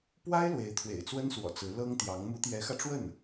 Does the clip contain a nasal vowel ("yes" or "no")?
no